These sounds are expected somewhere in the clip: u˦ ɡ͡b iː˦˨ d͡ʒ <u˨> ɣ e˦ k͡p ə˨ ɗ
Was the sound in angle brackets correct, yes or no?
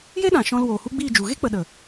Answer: yes